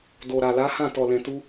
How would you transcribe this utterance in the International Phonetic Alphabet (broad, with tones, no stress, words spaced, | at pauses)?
do˨ɾa˨la˨˦hã˦˨ tɔ˨lɛ̃˨tu˧